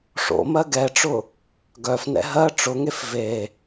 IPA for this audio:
ʂ o̰ m ɜ ɡ ɛ ʈ͡ʂ ʊ | ɡ œ f n ɛ̰ ɦ ɜ ʈ͡ʂ ʊ ŋ e f v e

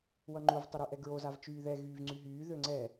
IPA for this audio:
w ʌ ŋ͡ǃ u v tˤ ʊ ɾ y ʔ ɛ ɡ ɹ o z a v t͡ʃ yː ð ɛ ɣ yː v ŋ͡ǀ y ɦ yː ð ø ŋ͡ǀ ɛ

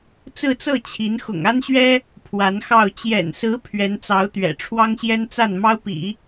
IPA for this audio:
t͡s ɹ̩˥˧ t͡s ɤ˥˩ t͡ɕʰ i˧˥ n x ʊ̰˨˩ ŋ a˥ n ɕ ɥ ɛ˥ | pʰ w a˧˥ n x ɑ˥˩ ʊ̯ t͡ɕ j ɛ̰˨˩ n s ɹ̩˧˥ pʰ ɥ ɛ˧˥ n t͡s ɑ˧˥ ʊ̯ t̪ ɥ ɛ̰˨˩ ʈ͡ʂʰ w ɑ˥ ŋ ɕ j ɛ˥ n t͡s a˥˩ n m ɑ˥ ʊ̯ p ḭ˨˩˦

